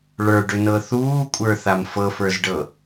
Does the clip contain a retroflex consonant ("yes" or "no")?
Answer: yes